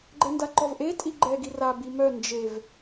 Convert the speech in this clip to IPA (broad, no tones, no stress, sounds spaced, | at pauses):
ɡ͡ǃ ɛ n d a ǃ ɔ v ʔ e tʼ i ɡ͡ǃ ɛ ɡ i r a b i m œ n d͡ʒ e v